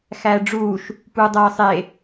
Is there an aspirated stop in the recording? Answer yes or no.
no